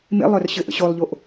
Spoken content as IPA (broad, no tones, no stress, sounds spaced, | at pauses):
m ḛ lˠ œ r ɕ ɘ ʔ ə̰ ɕ o lˠ ʎ o ʔ